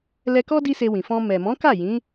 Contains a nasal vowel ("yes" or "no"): yes